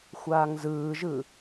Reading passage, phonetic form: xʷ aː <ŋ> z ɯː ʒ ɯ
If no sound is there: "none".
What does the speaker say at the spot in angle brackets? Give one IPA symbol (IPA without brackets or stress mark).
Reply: ŋ